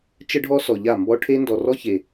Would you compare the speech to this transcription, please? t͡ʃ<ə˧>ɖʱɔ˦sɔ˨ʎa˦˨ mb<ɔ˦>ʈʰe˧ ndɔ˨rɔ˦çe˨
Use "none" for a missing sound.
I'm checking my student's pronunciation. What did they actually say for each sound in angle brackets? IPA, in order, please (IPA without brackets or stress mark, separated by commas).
ə˦, ɔ˧